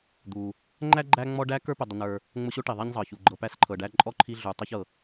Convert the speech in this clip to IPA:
d̪u˩ | ŋ͡ǃæ˥ɡ͡ǃæ˦ŋ͡mɔ˦ ɖæ˥kə˞˥pə˨ dˤə˨nə˞˨ | ŋ͡mʊ˦ɕo˥ʈi˩ ðˤɛ˦ɲzˤɤ˩çu˩ɡ͡ǃɤ˨ pæ˦sǃʰɤ˩ɖæ˦ ǃʼɔ˥ǃʰi˦ɮu˩tˤi˦ç ɤ˩

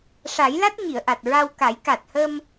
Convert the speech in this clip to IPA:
ʂa˨˩˦jla˦˥t̚ ɲi˨˩˨ə̯ʔa˨˩t̚ɹa˧wka˨˩˦j ka˨˩t̚hə˧m

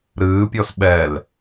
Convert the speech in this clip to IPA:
ɾɨːpʲɔs ɓɛl

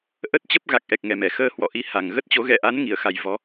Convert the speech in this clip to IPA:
ʔə˦˥t̚t͡ɕə˦˥p̚ ɣa˨˩k̚ʔɛ˨˩k̚ŋɛ˨˩ mɛ˧˩xəː˧ hwɔ̰˧˨ʔi˧ ha˨˩ŋ ɣə˦˥t̚t͡ɕo˨˦ ɣɛ̰˧˨ʔa˨˦n ŋi˧˩ə̯xa˨˩j vɔ˨˦

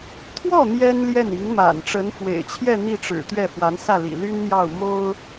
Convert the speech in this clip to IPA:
t̪ʰwɔ˥˩ n̪jɛ˥nljɛ˥˩n i˧˥ŋma̰˨˩n ʈ͡ʂə˧˥nfwḛ˨˩ɪ̯t͡ɕʰjɛ˥˧ n̪i˥˩ʈ͡ʂɻ̩˨˩ t̪ɥɛ˥˩fwa˧˥nsä˥˩ lḭ˨˩ly˥nn̪jɑ˥˩ʊ̯ mo˥ʊ̯

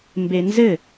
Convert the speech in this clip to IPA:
mbenzɘ

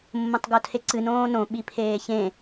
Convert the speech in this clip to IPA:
mːõtˤɡotʰeǀɨ nõːnõ ɓipʰeːçẽ

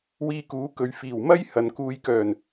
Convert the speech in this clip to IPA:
wiː˧kuː˨˥kɵ˨ɥ fiː˨˩wmɐ˥j hɐ˨nkuː˧jkœː˨˩n

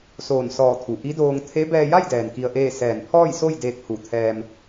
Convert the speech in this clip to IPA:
soː˧˩nsɔː˧˩t̪ʰu˩ ʔi˧˥doː˧ŋ t̪ʰe˧˥ bɛː˧ja˥˨jdɛː˩n ki˧ə̯ʔeː˥˨ sɛː˧˩npʰɔː˥˨jso˥˨j deː˧k̚hu˧˩t̪ʰɛː˧m

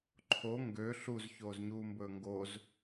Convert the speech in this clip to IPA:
ǃʰo ŋɡø ɬuz çoːzɲuːmbɵːŋɡoz

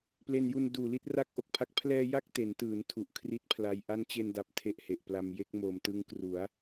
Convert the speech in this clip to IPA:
ple˧nju˧n duː˨˩li˥˩t̚ ra˥˩k̚ʔo˨˩k̚pʰa˦˥k̚ pʰlɛː˧ ja˥˩k̚te˩˦ntɯː˩˦n tʰu˨˩ʔkʰri˦˥t̚pʰla˧j ʔa˦˥nt͡ɕe˧nda˨˩p̚ tʰe˥˩ʔhe˨˩ʔpla˧m je˦˥k̚moː˨˩mtɯ˦˥ŋ kru˩˦a̯

